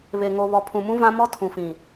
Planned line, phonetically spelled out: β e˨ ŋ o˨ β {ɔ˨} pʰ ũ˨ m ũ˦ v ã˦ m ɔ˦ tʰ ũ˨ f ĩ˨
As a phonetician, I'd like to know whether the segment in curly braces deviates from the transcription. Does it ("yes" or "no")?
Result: no